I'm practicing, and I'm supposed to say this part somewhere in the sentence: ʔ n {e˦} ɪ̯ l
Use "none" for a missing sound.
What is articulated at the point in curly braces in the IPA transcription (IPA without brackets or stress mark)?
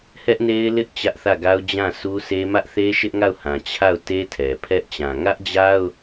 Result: e˦